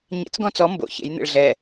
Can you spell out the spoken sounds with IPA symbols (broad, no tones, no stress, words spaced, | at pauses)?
ɲḛt͡s ɡɔ̃t͡sɔ mbo̰ çḛjn̪ḛɭ ɮɛ